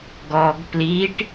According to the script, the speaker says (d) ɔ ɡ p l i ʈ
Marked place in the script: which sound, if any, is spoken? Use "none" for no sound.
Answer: ɡ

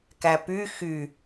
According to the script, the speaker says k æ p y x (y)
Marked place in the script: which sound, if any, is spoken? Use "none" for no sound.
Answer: y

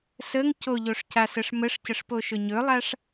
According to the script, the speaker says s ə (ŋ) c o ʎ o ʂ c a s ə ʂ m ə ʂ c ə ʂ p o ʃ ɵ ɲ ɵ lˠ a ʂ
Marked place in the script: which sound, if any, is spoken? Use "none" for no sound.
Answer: ŋ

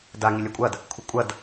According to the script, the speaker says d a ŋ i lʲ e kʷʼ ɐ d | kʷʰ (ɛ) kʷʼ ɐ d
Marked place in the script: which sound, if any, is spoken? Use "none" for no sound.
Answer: ɪ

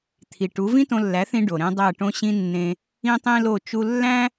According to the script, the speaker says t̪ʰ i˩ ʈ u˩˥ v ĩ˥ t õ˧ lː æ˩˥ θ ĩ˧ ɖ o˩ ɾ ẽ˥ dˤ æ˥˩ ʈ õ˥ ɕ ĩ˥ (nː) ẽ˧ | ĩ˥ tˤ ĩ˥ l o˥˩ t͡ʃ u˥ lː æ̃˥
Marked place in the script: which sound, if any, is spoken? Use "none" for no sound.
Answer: nː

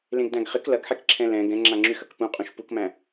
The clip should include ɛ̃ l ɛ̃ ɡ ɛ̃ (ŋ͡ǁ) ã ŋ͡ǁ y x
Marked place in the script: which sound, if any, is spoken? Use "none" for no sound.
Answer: ŋ͡ǁ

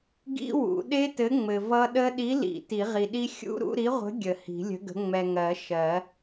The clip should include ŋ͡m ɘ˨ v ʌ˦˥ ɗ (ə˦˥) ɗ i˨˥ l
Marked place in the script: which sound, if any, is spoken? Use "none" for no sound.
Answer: ə˦˥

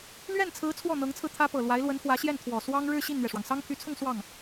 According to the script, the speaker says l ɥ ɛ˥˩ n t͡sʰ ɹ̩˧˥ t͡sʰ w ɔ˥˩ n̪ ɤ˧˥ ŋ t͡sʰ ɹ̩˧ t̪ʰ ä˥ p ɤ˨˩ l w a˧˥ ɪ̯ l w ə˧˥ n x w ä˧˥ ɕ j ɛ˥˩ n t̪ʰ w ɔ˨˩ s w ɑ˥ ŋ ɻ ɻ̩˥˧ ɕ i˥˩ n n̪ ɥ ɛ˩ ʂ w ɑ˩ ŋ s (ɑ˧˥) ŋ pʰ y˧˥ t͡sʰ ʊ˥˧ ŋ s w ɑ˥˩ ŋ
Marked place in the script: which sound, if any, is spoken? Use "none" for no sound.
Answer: ɑ˥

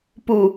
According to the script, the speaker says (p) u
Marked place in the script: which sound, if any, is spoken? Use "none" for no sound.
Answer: p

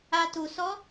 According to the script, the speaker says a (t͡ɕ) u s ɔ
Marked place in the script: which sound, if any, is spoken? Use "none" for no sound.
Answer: t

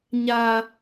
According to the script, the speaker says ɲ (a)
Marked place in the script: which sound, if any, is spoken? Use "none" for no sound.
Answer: a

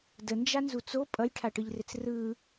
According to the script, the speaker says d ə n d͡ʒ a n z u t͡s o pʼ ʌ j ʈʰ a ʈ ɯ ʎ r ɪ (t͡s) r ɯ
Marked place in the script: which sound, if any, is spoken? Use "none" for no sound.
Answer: t͡s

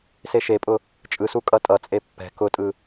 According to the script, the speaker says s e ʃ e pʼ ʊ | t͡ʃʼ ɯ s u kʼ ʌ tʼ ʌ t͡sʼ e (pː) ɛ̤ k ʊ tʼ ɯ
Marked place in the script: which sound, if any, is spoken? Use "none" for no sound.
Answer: pː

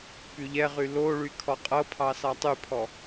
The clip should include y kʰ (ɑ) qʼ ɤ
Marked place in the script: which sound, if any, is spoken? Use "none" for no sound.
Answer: ɔ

